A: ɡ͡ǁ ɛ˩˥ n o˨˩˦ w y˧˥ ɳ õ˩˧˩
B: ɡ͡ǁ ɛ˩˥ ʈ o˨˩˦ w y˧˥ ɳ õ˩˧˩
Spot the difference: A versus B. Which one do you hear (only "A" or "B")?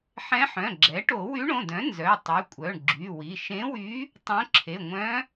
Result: B